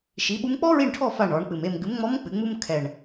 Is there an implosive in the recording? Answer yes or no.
yes